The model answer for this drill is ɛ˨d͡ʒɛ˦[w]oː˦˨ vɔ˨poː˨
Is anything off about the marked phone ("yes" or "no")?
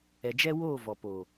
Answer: no